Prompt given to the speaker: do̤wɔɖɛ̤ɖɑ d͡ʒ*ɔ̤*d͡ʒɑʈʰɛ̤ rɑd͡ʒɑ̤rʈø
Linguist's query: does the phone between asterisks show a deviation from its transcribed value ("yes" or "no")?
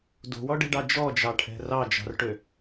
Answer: yes